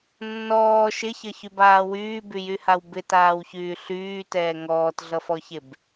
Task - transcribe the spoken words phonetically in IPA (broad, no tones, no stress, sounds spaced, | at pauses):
nː ɔː ʃ ɪ ç ʌ ç y b aː w yː b y j y h a w b ɪ t aː w ç yː ɬ yː t ɛː ŋ ɔː t ɮ ʌ f ɔ ç e b